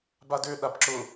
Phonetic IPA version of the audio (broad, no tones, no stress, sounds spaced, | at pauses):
b a d ø ɗ a b ǁ ʊ